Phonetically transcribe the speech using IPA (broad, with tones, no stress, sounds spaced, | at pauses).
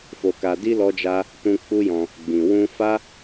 f o˧ k a˧ d i˦ l ɔ˦ d͡ʒ a˦ | t ũ˧ k͡p u˦ j ɔ̃˧ | ɡ͡b ĩ˨ w ũ˧ f a˦